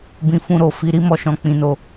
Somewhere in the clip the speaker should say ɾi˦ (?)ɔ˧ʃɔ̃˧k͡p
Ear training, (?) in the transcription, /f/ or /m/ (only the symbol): m